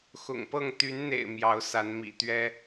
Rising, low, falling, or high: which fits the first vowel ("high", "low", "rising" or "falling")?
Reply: low